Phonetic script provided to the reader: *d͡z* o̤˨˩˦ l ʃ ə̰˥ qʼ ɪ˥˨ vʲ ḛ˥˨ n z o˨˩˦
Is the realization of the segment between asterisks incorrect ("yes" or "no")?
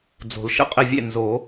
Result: no